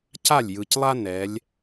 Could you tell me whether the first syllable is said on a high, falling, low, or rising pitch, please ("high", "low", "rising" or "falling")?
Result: falling